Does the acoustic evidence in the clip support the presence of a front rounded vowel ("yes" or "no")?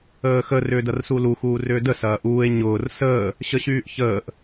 yes